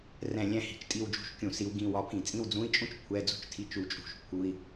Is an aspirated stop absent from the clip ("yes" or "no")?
no